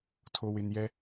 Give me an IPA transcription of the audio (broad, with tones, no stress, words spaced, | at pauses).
tʰo˨wɪ˨njɛ˦